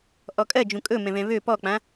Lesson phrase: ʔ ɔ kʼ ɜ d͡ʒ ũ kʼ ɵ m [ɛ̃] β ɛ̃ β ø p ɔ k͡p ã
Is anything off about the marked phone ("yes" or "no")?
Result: no